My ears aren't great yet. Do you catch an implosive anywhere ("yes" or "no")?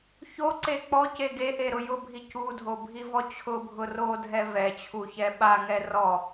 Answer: yes